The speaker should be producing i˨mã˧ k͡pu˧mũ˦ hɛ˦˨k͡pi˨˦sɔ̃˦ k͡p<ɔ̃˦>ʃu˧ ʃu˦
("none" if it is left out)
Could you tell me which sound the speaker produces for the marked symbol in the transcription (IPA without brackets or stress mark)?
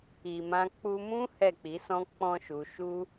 ɔ̃˦